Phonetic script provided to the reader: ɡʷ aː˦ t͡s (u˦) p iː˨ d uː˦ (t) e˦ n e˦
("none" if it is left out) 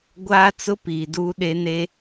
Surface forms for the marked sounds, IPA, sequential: ʊ˦, ɗ

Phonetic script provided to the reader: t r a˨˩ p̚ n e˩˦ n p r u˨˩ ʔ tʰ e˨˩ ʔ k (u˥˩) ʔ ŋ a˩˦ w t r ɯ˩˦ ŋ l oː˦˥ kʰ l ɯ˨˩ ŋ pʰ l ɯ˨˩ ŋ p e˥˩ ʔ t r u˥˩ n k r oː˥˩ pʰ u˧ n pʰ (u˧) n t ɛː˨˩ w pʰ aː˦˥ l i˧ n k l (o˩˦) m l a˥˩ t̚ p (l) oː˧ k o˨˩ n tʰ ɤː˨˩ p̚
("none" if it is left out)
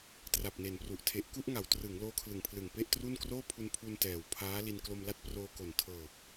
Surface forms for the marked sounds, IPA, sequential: u˥˩, u˧, o˧, r

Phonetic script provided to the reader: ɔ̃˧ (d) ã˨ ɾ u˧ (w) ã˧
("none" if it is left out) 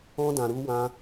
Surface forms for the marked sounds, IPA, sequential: d, w

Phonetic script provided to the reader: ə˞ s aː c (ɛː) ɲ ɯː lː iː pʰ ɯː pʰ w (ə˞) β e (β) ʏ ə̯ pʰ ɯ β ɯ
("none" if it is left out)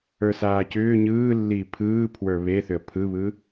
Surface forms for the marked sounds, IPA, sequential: ʏː, ə˞, θ

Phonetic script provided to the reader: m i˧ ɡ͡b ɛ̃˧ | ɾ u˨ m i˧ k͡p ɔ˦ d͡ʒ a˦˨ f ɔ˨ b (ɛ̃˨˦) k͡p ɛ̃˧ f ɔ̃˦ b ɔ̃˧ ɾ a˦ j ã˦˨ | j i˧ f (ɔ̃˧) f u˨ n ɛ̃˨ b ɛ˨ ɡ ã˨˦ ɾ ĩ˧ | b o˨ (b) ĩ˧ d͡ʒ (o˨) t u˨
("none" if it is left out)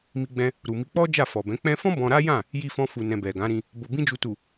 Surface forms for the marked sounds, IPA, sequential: ɛ̃˨˦, ɔ̃˧, b, u˨

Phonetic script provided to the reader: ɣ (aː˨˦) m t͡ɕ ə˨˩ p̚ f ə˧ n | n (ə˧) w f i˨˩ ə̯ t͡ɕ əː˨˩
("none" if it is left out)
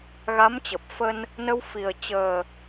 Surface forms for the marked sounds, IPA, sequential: a˨˦, ə˧

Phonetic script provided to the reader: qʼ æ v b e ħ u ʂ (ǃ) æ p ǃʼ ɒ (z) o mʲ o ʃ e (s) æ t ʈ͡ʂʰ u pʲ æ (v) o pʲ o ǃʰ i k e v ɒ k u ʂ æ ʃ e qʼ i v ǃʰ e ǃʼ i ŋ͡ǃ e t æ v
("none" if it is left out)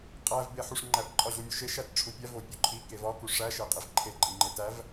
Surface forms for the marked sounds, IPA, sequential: ŋ͡ǃ, ʑ, ʃ, v

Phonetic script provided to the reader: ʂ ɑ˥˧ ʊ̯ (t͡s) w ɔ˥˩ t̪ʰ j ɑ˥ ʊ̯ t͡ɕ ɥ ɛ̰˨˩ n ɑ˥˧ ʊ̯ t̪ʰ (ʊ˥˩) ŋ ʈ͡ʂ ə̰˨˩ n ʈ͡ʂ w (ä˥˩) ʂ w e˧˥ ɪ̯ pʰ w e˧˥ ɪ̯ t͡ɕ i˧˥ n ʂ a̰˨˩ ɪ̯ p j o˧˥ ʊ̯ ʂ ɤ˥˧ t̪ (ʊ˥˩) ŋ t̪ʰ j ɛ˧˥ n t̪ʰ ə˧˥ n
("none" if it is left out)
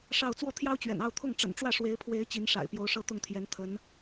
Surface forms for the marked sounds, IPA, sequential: t͡s, ʊ˥˩, ä˥˩, ʊ˥˩

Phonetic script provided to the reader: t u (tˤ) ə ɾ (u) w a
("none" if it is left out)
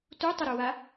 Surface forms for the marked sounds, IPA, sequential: tˤ, u

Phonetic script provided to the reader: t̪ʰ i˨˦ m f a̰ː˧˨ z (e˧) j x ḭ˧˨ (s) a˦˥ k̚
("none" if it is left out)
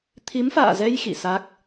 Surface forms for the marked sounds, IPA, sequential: ɛ˧, s

